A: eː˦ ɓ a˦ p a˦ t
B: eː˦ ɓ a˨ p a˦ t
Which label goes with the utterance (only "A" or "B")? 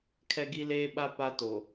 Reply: A